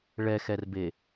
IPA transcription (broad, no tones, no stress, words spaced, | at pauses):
ɭɛxɛrbe